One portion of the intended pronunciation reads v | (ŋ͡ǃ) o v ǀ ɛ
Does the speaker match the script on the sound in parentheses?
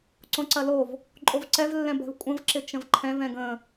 no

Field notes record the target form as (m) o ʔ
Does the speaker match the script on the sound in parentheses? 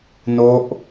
no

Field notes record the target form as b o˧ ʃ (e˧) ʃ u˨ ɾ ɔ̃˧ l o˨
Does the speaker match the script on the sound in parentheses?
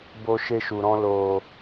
yes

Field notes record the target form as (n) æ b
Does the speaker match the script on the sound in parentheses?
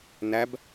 yes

